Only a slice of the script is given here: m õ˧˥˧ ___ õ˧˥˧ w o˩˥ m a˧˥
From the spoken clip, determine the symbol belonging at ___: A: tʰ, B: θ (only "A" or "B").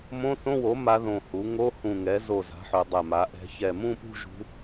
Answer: B